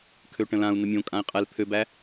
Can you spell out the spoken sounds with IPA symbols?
kʰøʈə̃lãu̯ nəmʲõ kʼãi̯qʼɛl pʰøbæ

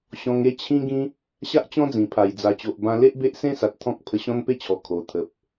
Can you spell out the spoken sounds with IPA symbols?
ɕɔ̃˧ŋe˦ t͡ɕʰĩ˧ɡĩ˧ | ɕa˦ʔt͡ɕɔ̃˦d͡zĩ˨˩pʰa˨˩j d͡za˨˩t͡ɕo˨ʔbã˧le˦ʔ be˦ʔsẽ˦sa˨t̚ t̪ʰɔ̃˦k̚ pʰə˧ɕɔ̃˦npe˥˧t͡ɕʰɔ˨˩ kʰo˨˩t̪ʰə˨p̚

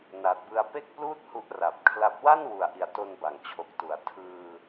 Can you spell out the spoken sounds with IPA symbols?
na˨˩t̚bɯ˧a̯ pe˥˩k̚pluː˥˩t̚ hu˦˥ʔra˨˩p̚kʰla˦˥p̚ wa˥˩nwu˨˩a̯ʔi˨˩a̯ to˧nba˨˩ŋ t͡ɕʰo˨˩k̚tu˩˦a̯ tʰɯː˧

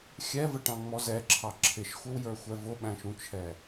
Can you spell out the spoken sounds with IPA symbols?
xʲɛvəʈɑ̃ŋ͡mɔ zɛǁʰɑ ǁʰɪʃxʷɪwjə˞xʷɛ vʊɓæ̃ʃũt͡ʃʰɛ

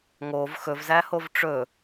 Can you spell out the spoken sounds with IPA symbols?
ŋov xɵvzæhov ʈ͡ʂɵ

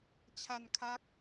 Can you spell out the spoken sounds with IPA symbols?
t͡ɕʰa˧nkʰa˦˥k̚

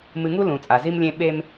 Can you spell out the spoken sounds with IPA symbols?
mɨ˨ŋu˦ lũ˨t͡sʼa˨zi˦mlʲẽ˦ ɓe˦m

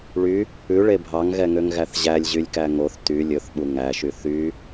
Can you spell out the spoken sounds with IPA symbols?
ɭy | ʉɭe bʱɑŋɣɛŋøŋɣæθ ʑælʲʑylʲkæ ŋoθ ty lʲɵθɓu ŋæʃy θy

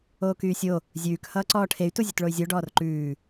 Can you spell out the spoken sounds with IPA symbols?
oːkyːsʲo | zʲʉːk hʌːǀɔːʈʰey̯ tuzʲʉtɭoy̯zʲo ɖɔːrǃʉː

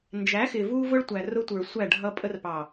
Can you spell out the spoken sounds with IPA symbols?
nd͡ʒæ˨˦xɪ˨ vu˦vʊ˦ɭtʷæ˨rʊ˦ tʷə˞˨sʷæ˦˨ɖʱʌ˦ pʼə˦rpɑ˨

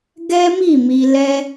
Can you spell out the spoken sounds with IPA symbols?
ɡɛ˦mi˦˨ mi˧ lɛ˧

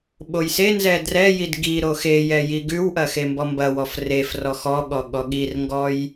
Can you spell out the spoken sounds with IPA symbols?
ɓojsenzɛ drɛjid ɡiɾo xejɛ jiɡʉwʔɐ xembɔmbɐwɔf ref rɔxɔɠɔ ɠɔɠirŋɡɔj

